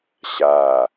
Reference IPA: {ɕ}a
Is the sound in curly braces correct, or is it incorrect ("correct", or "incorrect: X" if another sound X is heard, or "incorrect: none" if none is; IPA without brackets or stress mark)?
correct